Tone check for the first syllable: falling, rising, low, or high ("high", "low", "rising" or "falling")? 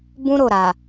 high